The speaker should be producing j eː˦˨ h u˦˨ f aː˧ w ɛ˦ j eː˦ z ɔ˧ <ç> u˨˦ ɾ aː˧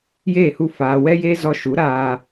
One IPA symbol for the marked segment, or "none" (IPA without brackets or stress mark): ʃ